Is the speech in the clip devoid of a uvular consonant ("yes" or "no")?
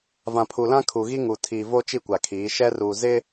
yes